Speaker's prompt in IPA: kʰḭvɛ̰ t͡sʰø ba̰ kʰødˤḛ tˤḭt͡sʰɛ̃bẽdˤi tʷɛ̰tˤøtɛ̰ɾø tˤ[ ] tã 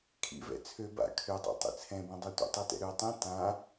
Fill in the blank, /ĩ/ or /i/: ĩ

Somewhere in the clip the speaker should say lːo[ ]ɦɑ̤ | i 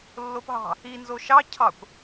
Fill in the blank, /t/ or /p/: p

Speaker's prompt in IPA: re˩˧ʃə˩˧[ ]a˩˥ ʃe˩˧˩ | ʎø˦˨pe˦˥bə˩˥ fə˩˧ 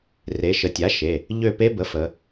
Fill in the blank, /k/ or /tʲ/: tʲ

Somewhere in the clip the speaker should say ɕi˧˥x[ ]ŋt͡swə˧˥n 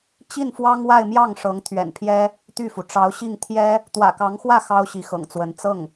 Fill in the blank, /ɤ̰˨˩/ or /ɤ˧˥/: ɤ̰˨˩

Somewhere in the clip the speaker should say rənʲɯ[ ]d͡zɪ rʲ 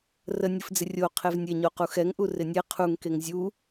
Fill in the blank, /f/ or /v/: f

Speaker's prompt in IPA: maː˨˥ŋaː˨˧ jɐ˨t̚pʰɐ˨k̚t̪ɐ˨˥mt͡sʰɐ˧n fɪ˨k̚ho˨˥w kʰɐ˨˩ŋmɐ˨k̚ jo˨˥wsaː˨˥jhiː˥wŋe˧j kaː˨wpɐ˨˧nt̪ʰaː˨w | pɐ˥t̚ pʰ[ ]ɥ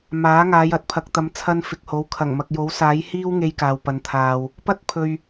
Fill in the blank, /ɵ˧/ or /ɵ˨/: ɵ˨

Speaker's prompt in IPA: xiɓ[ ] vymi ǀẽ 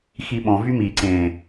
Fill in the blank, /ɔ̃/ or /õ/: ɔ̃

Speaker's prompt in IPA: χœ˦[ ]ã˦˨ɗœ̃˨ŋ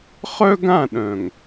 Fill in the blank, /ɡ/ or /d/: ɡ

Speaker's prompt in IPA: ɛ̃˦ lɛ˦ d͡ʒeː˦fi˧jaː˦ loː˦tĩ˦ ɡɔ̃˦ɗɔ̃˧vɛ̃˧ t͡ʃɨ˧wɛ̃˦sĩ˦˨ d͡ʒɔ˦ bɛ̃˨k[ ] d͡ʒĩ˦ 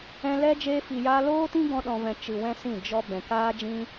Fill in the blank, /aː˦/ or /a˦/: aː˦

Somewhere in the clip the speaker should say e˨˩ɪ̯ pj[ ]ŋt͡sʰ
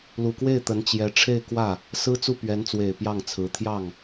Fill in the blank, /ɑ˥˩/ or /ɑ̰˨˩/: ɑ˥˩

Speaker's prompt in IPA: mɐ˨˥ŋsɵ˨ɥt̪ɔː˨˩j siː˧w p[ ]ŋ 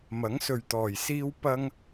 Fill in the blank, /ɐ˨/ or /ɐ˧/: ɐ˧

